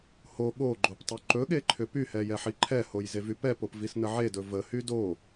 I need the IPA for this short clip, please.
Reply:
ho ɠoɡ͡ǃop tˤyǃɵɠe ǃʰʏpyhɛ jɛħiǃʰɛhoj zevypɛpop visnəʕedɵ vəhy do

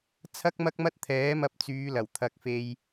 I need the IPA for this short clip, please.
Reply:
t͡sʰɐ˥k̚mɐ˥k̚mɐ˥t̚ t̪ʰɛː˨˥mɐ˧p̚t͡syː˨˧ lɐ˨˩w t̪ʰɐ˧k̚fe˧j

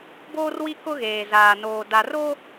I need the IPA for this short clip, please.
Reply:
boː˦rwi˦ kʊ˦ɣeː˨zaː˨ noː˨ da˨ro˦

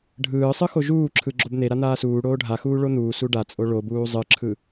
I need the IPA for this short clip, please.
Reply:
ɖʱɯːsˤɯxo ʒuːǁʰɯ ɡ͡ǁobn̪eɾa n̪aːsuː ɽoːɖʱaxuː ɭon̪uː suɖat͡sʼo ɭobuː zˤɯǁʰɯ

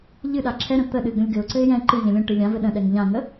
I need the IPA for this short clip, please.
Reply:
ʎɨɗa ǁʰɛɾə̃ t̪ə ɗɨɡə̃lʲɡɘʊ̯ǀɘɪ̯ jɛ̃ ǃɨʎɛ̃ lʲə̃ ʈɨlʲãvɘ ɗə̃ɗɛŋ ʎãŋə

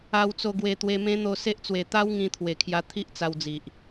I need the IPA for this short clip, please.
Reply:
a˧wt͡so˧ ɡwe˧t̪we˧mẽ˦ n̪o˧se˦ʔt͡swe˨˩ t̪a˦w ŋĩ˧t̪ʰwe˨˩kʰja˧ t̪ʰi˦ʔt͡sa˧wd͡zi˨ʔ

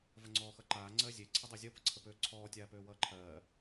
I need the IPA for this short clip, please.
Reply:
vəŋ͡ǀɔːxʌǃaː ŋ͡ǀɜzʲe ǀʰədˤɜzʲʌ pəǀʰəpøːǀʰɔː tʲaːpøːwʌːǃʰɜː

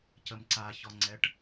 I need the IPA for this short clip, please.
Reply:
cəmǀaçɔŋ͡ǀɛʈ

